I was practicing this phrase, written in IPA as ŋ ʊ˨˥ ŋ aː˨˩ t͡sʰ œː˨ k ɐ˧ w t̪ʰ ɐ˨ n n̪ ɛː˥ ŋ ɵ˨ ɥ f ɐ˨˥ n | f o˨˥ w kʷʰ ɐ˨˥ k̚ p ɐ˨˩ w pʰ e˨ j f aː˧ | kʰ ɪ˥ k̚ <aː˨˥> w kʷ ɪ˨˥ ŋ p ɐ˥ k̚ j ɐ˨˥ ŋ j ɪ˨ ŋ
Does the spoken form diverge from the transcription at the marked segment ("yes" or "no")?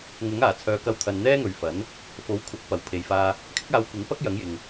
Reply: yes